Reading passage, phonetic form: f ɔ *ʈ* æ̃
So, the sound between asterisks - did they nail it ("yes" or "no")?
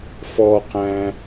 no